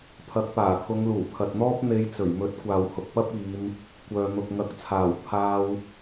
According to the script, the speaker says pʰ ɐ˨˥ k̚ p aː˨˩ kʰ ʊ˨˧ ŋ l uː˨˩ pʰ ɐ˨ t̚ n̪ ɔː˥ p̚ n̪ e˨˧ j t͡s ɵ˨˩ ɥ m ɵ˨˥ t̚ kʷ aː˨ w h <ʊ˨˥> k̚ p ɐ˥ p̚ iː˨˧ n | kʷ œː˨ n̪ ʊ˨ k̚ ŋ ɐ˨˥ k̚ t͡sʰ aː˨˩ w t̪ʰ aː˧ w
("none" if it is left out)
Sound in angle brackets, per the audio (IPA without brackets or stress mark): ʊ˨